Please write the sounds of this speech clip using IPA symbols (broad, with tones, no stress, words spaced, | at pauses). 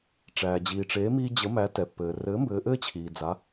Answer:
ʈ͡ʂæː˩d͡ʑiː˩ʈ͡ʂeː˩˥ miː˧d͡ʑə˩˥ mæ˩˥tɛ˩ pːɘː˩rɘ˩˥ mbɘː˩˥ʔɘː˥t͡ɕʰiː˩ d͡za˩˥